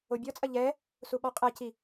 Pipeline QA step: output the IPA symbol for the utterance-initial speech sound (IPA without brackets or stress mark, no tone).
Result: o